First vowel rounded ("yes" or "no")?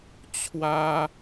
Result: no